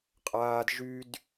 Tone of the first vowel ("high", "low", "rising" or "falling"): high